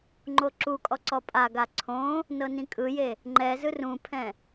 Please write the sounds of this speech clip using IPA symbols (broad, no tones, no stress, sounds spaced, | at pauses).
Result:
ŋ͡ǃ o ǁ u kʼ ɔ ǀ ɔ pʼ a ɡ a ǀʰ õ | n ɤ n ĩ kʼ ɯ j e | ŋ͡ǃ ɛ z ɯ r ũ pʰ ɛ̃